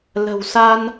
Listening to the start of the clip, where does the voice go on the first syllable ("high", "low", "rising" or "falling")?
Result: low